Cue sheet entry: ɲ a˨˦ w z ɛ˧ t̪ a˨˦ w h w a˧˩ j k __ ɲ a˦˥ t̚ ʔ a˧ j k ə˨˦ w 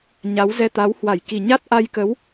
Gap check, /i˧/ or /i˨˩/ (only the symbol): i˨˩